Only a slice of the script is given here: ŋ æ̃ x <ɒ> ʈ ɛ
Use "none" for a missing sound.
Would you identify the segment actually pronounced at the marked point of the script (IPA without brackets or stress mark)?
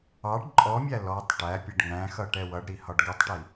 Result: ʌ